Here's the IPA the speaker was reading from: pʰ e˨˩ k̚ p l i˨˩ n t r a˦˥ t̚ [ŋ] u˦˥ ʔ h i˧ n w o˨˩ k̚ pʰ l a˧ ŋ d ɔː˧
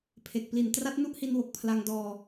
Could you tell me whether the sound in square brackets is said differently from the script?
yes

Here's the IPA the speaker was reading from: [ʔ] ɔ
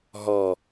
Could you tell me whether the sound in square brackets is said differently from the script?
yes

